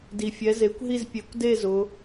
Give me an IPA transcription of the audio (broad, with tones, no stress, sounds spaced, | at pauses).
d i˨˩ fʲ ɛ˨˦ z e˨˦ kʷ ɦ i˥˨ z pʲ e˨˦ kʷ d e˥˨ z ʊ˨˦